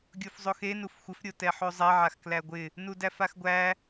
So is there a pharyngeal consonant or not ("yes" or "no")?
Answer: yes